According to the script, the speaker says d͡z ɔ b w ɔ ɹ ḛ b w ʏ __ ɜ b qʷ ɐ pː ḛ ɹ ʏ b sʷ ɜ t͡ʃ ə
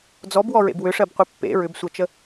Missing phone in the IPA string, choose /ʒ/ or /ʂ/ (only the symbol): ʂ